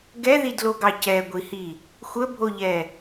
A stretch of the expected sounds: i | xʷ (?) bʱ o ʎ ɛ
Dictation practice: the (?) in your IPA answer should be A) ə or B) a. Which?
A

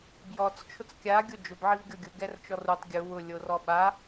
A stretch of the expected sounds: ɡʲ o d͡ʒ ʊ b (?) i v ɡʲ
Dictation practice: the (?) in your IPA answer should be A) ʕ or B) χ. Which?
A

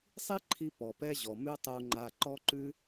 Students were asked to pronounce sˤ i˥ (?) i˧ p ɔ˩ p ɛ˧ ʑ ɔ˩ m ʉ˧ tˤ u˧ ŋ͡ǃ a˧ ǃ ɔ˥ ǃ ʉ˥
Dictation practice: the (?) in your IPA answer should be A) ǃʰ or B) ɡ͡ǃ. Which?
A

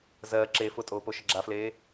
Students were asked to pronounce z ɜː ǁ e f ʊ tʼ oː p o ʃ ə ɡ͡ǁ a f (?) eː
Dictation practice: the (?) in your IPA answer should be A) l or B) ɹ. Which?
A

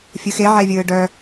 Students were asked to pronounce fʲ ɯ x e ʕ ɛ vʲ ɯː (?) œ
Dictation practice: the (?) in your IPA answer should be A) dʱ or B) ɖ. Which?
B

